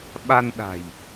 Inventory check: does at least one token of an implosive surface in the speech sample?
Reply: yes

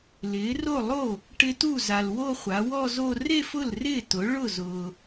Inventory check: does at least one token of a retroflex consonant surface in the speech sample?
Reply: yes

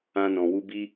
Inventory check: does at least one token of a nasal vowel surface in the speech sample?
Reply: yes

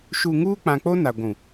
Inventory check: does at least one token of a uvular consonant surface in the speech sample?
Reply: no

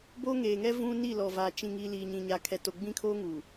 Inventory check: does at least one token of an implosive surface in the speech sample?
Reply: no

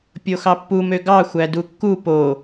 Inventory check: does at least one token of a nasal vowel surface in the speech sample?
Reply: no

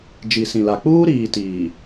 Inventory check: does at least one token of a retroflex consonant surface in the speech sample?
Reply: no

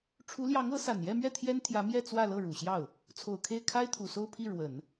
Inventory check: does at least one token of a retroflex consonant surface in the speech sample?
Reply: yes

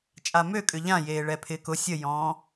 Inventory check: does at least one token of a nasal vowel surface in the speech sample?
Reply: yes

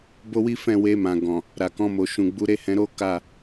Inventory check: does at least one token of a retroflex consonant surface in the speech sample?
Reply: no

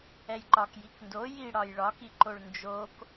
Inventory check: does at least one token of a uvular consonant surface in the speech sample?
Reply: no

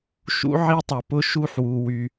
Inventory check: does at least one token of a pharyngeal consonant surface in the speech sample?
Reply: yes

